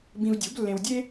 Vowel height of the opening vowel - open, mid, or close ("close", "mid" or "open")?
close